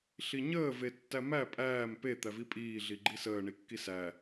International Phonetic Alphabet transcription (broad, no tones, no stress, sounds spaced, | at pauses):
ɬ i ɲ əː v e tː æ m æ pʼ æː m p e t̪ æ v i pʼ iː ɮ i ɡ͡ǃ i s əː ɳ i kː i s æ